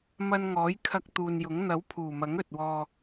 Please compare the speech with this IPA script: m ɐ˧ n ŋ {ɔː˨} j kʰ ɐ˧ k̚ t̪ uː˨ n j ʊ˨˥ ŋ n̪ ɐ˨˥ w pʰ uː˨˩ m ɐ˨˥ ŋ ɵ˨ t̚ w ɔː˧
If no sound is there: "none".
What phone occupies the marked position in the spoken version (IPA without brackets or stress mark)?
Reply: ɔː˨˥